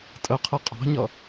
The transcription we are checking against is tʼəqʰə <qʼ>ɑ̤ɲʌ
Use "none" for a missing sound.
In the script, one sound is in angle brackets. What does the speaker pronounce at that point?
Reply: qʼ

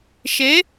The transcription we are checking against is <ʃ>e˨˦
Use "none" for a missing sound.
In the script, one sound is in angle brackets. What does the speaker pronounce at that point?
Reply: ʃ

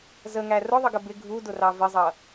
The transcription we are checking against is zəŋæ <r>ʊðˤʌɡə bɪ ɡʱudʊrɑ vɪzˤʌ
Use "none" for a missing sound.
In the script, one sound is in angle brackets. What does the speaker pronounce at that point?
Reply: r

